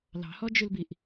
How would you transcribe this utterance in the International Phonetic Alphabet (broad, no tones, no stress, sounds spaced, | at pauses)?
l ɑ̤ h ɔ d͡ʒ ʉ l b i ʔ